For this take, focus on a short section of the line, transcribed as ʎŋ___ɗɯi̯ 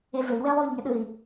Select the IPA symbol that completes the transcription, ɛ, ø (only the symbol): ɛ